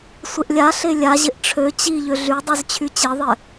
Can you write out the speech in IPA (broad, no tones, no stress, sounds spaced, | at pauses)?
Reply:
sʷ ɪ ʔ lʲ a ɬ e lʲ a ʑ ɪ ʔ ʈ͡ʂʰ ø t͡ɕ i ʎ ø ɮ y dˤ y z t͡ɕʰ y t͡ɕ e ðˤ ɪ